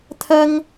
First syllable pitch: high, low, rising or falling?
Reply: high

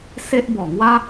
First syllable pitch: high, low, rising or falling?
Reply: high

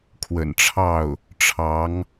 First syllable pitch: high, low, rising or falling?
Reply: low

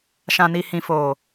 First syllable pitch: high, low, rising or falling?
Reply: low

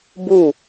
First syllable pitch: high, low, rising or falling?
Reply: falling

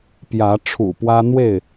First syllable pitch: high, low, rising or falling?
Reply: rising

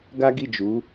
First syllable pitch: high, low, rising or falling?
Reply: high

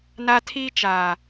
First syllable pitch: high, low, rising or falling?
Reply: high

